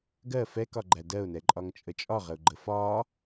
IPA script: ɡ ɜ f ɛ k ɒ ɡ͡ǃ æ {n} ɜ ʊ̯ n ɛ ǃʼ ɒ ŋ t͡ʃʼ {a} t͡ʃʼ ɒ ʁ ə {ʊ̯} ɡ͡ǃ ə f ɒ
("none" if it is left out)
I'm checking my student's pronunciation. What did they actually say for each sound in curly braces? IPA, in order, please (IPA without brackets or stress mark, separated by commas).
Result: d, ə, ʊ̯